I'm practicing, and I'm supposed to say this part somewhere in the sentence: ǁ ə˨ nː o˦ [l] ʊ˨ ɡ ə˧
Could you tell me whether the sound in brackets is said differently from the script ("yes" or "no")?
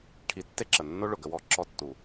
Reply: yes